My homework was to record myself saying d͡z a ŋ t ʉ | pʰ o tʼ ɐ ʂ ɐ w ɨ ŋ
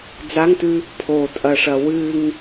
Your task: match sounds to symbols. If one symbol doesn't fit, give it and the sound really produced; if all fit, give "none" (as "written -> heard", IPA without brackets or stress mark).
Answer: none